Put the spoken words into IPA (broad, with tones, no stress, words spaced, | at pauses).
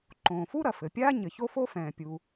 ǃõː˩fu˥ɾɐ˩ fɘ˩pʲaː˥ ɲɘ˩ço˥fo˥fɛ̃ː˩ pʲu˩